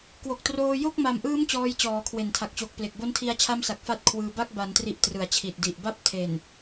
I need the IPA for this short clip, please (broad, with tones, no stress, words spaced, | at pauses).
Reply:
kwo˨˩k̚troː˧ jo˥˩k̚ma˨˩mʔɯː˦˥m t͡ɕɔː˦˥jt͡ɕɔː˩˦kʰwe˨˩n tʰa˨˩k̚t͡ɕoː˨˩k̚ple˨˩k̚ bo˦˥ntʰi˧a̯t͡ɕʰa˦˥msa˨˩k̚ fa˦˥t̚kʰwɯː˧ba˥˩k̚ ba˩˦ntri˨˩ʔ trɯ˩˦a̯t͡ɕʰi˨˩t̚di˨˩ʔ ba˥˩p̚ tʰe˨˩n